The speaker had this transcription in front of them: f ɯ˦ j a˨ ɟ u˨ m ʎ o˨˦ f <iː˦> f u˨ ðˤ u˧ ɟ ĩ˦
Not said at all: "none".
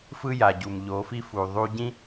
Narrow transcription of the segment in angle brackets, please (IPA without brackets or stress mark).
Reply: i˦